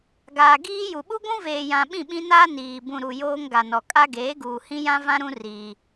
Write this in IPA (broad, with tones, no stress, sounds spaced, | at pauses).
ɡ aː˨ ɡ iː˦ j u˨ ɓ u˦ ɡʷ ũ˦ v eː˨ j ã˨ ɓ ĩ˦˨ ɓ ĩ˦ n aː˦ n iː˨ b ũ˨ ɾ u˨ j oː˦ ŋ ɡ a˨ n ɔ˨ kʼ a˦ ɡ eː˨˦ ɡ uː˨ h ĩ˦ j ã˦ v ã˦ ɾ ũ˦ r iː˦